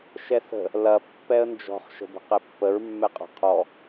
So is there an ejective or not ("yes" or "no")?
yes